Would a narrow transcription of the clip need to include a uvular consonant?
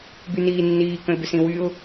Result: no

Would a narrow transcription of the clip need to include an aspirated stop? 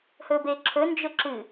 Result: yes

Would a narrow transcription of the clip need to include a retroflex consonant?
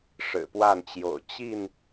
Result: yes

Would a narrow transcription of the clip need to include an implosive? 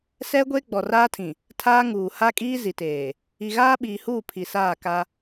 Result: yes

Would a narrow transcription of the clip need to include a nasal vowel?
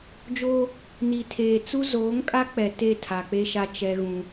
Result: yes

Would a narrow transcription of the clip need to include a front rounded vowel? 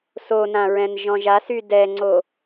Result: yes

